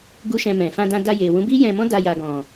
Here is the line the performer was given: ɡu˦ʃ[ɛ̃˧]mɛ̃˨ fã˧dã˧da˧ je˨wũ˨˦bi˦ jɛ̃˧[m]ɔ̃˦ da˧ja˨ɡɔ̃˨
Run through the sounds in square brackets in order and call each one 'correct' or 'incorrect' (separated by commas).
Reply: correct, correct